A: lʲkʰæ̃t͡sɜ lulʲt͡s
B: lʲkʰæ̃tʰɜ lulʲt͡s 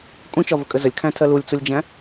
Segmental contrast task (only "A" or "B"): B